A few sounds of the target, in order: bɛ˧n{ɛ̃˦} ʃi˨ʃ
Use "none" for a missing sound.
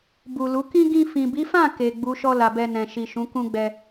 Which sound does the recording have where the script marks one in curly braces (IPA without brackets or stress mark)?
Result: ɛ̃˨